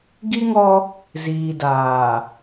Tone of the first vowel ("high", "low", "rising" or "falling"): high